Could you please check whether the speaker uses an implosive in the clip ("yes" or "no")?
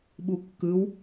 yes